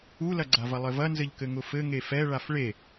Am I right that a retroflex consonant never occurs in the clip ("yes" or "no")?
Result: no